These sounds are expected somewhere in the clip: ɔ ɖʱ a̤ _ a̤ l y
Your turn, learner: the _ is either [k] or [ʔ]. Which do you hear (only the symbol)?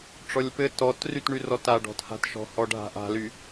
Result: ʔ